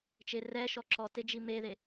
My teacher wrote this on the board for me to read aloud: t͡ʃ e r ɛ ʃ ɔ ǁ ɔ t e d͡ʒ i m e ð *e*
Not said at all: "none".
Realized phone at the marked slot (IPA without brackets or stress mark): e